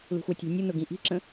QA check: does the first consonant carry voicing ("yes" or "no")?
yes